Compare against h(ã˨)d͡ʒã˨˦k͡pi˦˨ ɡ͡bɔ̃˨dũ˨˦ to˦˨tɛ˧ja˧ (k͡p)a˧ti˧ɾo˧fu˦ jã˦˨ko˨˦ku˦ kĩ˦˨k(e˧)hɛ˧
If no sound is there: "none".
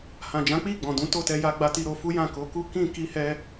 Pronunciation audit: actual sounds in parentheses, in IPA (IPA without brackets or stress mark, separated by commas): ã˨, ɡ͡b, i˧